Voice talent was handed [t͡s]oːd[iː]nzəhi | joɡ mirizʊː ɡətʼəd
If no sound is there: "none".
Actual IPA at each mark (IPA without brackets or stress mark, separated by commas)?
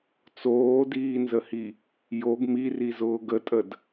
t͡s, iː